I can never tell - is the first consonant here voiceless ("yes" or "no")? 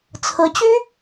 yes